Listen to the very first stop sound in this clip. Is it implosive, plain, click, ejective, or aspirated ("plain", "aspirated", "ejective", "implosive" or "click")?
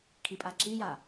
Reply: aspirated